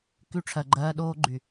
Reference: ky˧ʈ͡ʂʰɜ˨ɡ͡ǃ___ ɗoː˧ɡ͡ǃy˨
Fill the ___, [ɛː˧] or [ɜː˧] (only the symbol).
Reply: ɜː˧